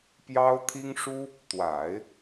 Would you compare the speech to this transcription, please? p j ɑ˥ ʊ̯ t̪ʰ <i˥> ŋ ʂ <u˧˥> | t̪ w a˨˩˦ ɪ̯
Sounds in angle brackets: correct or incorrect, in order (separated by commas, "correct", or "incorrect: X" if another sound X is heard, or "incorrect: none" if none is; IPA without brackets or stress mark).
correct, incorrect: u˥